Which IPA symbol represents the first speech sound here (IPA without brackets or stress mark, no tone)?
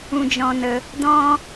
ũ